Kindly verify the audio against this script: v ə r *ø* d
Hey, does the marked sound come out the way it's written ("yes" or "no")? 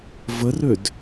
yes